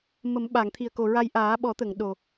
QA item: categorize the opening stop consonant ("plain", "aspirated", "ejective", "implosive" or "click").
implosive